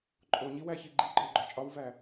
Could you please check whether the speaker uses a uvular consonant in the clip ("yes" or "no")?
no